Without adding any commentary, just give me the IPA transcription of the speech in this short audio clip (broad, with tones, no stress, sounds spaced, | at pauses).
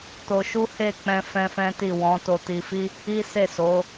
t o˧ ʃ u˦ h e˦˨ k͡p ɛ̃˧ f ɛ̃˦ f ɛ̃˦ t i˦˨ w ɔ̃˨˦ t o˧ t i˧ f i˦ | i˦ s e˦˨ s o˨˦